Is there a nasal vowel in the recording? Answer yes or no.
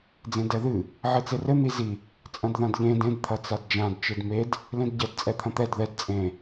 yes